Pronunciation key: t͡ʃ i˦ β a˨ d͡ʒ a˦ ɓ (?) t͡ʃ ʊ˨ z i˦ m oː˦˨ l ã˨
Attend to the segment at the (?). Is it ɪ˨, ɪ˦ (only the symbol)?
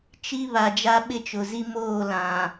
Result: ɪ˦